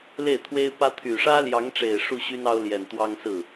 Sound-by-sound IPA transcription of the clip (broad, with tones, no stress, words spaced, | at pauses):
le˥˩ɪ̯t̪ʰwe˥ɪ̯pä˥ t̪ʰy˨˩ʂä˥ljɑ˧˥ŋʈ͡ʂe˨˩ɪ̯ ʂu˥˩ɕy˥nɑ˥ʊ̯ljɛ˨˩n t̪wɑ˥ŋsɹ̩˥˩